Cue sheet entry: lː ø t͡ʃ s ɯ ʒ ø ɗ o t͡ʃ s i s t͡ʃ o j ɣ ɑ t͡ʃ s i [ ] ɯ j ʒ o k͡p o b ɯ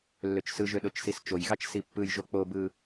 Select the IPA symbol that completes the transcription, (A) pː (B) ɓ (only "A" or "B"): A